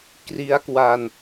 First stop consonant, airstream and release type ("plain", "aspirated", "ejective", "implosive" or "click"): plain